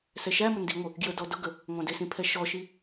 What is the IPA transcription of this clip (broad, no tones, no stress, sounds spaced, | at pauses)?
s ɛ ʃ æ m ʊ n d i ŋʷ ə | ɡ j ə d ɔ d ʊ ɡ ə | ŋʷ æ̃ d ɪ s ĩ pʰ ɛ ʃ ɔ ʃ i